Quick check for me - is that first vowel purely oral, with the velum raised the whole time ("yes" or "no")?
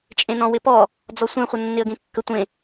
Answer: no